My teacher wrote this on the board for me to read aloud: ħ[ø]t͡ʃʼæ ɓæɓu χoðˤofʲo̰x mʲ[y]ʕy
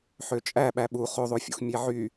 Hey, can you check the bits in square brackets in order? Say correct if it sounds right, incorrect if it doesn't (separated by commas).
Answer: correct, incorrect